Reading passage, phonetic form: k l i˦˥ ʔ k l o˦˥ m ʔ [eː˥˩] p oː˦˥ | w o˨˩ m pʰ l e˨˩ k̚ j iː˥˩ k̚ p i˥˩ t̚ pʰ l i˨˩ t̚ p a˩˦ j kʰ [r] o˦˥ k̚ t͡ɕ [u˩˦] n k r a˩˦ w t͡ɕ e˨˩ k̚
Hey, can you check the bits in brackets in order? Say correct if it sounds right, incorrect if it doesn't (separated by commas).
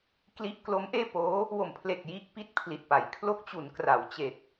correct, incorrect, correct